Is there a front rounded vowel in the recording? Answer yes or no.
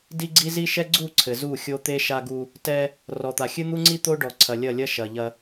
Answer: no